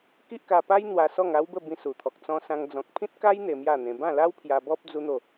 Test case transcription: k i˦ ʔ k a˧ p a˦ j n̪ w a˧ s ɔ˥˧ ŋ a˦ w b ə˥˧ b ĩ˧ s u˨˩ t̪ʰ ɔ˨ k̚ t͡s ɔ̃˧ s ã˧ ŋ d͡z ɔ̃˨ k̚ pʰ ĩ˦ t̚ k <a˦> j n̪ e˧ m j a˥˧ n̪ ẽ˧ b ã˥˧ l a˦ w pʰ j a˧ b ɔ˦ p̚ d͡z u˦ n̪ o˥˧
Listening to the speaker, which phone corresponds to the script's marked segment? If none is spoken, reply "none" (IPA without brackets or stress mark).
a˦